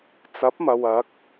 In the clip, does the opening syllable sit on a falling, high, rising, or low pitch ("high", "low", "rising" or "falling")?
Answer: rising